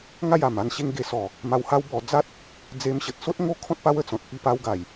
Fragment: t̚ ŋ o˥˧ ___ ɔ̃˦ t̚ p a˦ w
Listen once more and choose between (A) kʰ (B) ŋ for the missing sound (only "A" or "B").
A